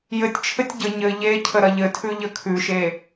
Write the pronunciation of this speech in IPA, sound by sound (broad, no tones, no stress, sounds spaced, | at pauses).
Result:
j ɘ tʲ t͡ʃʰ ɘ tʲ ɟ ə ɲ ɘ ʎ e cʰ ə ɾ ɐ ʎ ɘ tʰ ʉ ʎ ə kʰ ʉ ʃ e